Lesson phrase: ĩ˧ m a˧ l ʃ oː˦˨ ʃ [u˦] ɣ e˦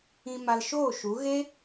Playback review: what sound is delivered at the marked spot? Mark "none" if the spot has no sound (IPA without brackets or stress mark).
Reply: u˨˦